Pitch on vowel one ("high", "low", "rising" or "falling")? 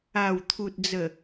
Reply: low